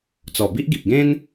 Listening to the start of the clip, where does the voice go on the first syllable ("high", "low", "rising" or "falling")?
low